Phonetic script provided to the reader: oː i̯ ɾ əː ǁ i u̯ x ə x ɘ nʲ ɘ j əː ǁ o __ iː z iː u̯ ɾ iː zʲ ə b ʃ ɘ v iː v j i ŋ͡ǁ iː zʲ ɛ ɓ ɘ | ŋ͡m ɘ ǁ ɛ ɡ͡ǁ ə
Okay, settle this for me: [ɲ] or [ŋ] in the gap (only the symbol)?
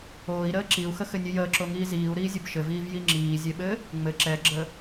ŋ